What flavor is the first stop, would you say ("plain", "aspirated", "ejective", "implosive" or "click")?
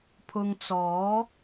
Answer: aspirated